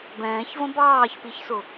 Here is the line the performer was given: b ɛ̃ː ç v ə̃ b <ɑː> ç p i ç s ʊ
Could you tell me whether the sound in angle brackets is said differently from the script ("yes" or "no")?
no